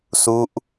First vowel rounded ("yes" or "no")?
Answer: yes